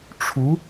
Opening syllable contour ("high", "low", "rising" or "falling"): rising